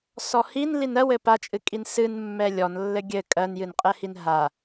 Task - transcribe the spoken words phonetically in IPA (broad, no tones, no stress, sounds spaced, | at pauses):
s ɔ h i n l i n ɜ w ɘ p a t͡ʃʼ ɨ kʼ i n s ɨ n mː ɛ lʲ ɔ n lː ɘ ɡʲ ɘ kʼ ɜ n j ɨ n qʼ ɛ h i n ɦ a